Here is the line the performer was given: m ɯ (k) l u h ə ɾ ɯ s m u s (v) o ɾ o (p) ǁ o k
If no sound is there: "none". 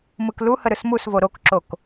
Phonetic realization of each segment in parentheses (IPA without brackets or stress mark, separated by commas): k, v, k